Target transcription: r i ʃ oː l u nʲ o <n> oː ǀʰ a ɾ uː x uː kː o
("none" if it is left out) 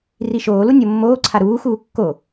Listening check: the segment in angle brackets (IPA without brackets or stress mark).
mː